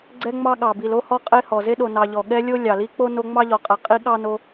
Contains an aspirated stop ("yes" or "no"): no